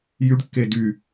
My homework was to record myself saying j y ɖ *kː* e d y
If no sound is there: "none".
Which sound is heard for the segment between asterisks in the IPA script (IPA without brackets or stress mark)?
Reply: kː